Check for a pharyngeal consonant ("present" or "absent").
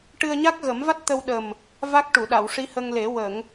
absent